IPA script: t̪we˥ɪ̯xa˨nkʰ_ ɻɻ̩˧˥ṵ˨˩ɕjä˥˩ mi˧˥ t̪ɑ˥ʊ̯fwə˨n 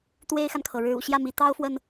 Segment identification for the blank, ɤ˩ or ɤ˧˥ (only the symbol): ɤ˩